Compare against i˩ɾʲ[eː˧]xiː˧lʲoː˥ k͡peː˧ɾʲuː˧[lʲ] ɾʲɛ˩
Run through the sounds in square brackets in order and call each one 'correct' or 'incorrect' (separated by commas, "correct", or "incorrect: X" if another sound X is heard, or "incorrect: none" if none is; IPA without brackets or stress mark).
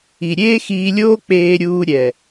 incorrect: eː˥, incorrect: none